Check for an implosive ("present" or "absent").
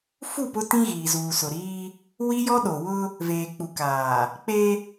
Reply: present